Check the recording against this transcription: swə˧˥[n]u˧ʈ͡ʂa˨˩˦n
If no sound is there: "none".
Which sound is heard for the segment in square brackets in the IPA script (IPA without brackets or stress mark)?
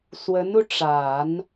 n